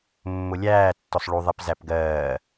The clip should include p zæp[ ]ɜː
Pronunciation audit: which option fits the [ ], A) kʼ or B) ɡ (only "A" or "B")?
B